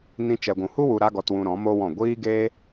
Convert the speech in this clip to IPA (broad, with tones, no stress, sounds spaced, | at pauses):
n ĩ˧ t͡ʃ ɛ˨ ɡʷ ũ˨ h u˦ w u˧ ɾ a˦ ɡ ɔ˧ t w ũ˧ ɾ ɔ̃˨˦ m o˦ w ɔ̃˦˨ ɡʷ iː˦ ɡ eː˦